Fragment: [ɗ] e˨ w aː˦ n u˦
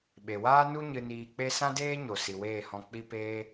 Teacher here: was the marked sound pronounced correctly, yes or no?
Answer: no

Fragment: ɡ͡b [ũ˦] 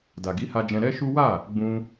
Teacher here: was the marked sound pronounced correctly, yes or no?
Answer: no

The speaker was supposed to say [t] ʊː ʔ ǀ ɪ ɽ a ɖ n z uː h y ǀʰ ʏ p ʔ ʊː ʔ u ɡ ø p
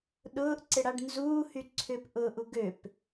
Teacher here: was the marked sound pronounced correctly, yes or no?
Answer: no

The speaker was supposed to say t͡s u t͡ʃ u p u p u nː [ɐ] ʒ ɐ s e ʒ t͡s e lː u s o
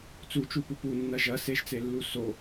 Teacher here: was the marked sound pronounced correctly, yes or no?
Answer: yes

